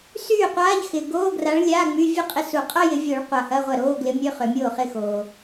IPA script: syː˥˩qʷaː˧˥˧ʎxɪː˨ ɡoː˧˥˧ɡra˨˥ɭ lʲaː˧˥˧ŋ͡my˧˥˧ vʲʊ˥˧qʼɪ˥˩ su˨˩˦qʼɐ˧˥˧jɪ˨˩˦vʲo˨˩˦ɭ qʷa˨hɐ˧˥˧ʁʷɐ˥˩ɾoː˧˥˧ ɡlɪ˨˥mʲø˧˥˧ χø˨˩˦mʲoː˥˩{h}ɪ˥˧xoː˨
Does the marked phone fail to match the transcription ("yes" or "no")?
yes